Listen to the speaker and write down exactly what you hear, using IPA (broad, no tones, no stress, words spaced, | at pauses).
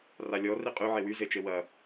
ralʲɔ riqʼy ʕewy zet͡ʃewɐ